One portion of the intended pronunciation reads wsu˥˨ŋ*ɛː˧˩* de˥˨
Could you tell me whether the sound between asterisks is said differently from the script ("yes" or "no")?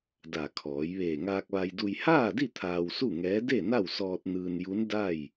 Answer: yes